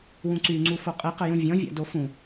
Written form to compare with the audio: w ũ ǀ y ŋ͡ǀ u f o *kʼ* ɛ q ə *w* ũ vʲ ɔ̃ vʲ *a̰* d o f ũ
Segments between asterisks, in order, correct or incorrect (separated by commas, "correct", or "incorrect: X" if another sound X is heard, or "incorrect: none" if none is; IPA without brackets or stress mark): incorrect: qʼ, incorrect: j, correct